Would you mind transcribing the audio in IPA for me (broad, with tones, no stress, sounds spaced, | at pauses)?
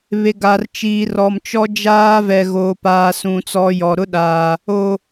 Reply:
β e˨ ɡ a˨ r t͡ʃ iː˨ r ɔ˨ m t͡ʃ ɔ˦ d͡ʒ aː˦ v ɛ˨ ɣ oː˨ p aː˨ s ũ˨ t͡s ɔ˨ j ɔ˨ ɾ ʊ˦ ɗ aː˨ | o˨